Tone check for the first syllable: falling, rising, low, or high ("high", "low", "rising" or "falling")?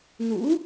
rising